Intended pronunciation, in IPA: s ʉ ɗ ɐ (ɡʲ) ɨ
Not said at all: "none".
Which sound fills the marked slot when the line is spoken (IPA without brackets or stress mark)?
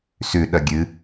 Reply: ɡʲ